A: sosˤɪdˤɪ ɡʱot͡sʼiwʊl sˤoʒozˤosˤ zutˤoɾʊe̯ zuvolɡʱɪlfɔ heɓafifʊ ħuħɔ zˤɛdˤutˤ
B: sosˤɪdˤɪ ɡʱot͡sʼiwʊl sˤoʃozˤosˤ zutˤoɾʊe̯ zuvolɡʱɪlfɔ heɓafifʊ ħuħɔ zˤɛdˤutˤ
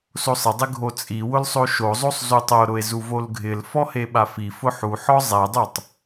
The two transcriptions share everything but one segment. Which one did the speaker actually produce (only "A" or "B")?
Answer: B